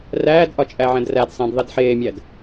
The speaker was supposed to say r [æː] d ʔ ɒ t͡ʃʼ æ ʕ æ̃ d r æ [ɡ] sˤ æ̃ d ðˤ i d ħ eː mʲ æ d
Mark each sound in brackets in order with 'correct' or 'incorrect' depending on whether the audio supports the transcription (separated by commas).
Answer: correct, incorrect